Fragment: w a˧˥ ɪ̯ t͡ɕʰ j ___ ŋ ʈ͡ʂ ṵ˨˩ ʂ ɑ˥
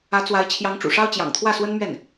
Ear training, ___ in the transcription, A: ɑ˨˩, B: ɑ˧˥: B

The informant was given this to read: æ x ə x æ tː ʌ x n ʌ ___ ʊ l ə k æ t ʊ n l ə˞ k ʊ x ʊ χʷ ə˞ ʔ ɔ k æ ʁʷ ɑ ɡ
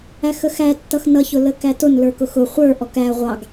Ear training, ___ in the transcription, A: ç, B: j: A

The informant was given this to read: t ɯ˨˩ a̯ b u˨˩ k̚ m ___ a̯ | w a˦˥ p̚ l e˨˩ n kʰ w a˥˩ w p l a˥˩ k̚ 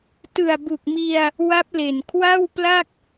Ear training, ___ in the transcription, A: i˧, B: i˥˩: A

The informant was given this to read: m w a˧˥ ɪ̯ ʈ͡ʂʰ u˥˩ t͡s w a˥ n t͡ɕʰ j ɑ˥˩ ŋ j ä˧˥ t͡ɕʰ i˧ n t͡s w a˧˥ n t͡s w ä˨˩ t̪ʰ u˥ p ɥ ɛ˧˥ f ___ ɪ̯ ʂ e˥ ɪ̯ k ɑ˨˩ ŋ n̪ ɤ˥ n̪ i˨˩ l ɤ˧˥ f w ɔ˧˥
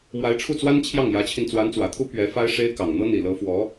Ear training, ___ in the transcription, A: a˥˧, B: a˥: B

